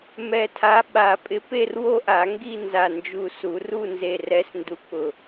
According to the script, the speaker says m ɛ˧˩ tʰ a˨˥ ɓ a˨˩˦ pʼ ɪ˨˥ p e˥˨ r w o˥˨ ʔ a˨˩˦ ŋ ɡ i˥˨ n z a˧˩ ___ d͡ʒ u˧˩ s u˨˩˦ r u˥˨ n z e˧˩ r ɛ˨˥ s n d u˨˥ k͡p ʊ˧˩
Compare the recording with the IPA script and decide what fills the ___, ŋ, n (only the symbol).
n